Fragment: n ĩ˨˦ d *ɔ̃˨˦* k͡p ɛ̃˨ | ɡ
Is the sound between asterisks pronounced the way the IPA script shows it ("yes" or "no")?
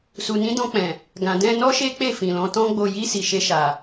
no